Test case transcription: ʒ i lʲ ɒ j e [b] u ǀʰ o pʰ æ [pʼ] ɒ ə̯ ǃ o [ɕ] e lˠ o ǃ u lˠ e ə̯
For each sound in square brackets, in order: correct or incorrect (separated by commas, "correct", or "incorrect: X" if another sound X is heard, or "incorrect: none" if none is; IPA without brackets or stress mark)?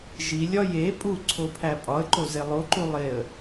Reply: incorrect: pʼ, correct, incorrect: z